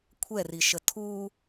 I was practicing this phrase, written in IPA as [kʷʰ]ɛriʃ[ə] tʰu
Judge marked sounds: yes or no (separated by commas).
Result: yes, yes